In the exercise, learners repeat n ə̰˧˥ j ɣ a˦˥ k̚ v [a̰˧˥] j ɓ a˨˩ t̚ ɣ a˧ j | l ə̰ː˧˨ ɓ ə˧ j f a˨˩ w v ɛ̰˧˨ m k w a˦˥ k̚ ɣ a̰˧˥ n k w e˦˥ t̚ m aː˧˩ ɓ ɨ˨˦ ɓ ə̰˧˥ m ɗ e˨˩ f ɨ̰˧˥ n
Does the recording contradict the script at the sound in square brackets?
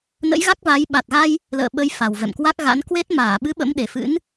yes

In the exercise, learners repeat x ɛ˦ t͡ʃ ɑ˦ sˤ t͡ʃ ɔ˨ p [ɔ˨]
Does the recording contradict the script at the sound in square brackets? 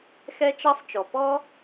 yes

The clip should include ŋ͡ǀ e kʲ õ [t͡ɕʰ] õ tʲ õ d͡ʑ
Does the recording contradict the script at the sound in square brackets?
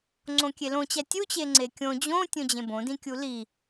yes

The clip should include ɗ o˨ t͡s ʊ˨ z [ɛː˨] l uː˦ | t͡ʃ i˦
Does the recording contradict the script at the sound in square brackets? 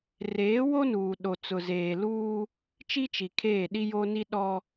yes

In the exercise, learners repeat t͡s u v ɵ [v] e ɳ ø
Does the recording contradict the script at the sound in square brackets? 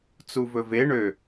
no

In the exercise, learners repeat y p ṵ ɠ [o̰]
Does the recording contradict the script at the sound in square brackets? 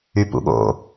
no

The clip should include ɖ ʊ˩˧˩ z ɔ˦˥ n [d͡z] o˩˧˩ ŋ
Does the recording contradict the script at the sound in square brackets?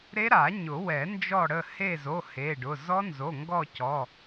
yes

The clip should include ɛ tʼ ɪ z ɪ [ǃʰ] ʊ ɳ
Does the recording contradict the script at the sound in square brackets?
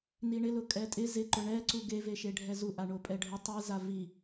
yes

